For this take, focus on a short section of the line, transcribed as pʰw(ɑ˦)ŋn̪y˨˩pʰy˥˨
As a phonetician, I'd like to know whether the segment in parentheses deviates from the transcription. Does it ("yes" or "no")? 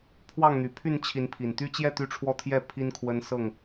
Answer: yes